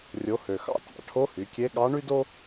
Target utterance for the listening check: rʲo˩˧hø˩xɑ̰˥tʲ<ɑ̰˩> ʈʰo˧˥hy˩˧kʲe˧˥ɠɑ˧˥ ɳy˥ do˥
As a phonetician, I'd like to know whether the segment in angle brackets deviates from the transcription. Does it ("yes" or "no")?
no